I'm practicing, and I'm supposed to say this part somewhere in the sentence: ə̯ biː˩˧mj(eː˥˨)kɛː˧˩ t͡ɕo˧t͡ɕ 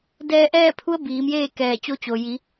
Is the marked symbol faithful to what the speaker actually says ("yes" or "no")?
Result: yes